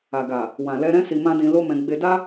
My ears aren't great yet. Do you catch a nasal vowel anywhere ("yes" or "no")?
yes